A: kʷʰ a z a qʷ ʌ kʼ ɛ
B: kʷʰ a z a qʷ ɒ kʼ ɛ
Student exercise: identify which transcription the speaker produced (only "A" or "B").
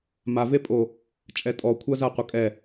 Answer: A